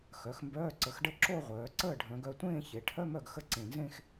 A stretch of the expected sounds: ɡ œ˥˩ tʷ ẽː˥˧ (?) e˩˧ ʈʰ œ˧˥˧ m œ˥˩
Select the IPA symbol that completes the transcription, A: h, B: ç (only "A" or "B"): B